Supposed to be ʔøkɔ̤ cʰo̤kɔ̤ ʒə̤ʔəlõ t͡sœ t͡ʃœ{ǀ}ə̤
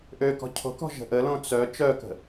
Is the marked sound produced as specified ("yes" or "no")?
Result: no